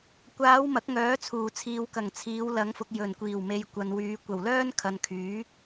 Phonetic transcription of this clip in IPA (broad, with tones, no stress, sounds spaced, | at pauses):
kʷ aː˨˧ w m ɐ˨˥ k̚ ŋ œː˨˥ t͡sʰ uː˨˩ t͡sʰ iː˨ w k ɐ˨˩ ŋ t͡sʰ iː˨˧ w l ɐ˨˧ ŋ f ʊ˨ k̚ j ɵ˨˩ n kʷ iː˨˩ w m e˨ j kʷ ɐ˨ n w yː˨˧ kʷ ɐ˨˩ w l œː˥ n kʰ ɐ˨ n kʰ yː˨˥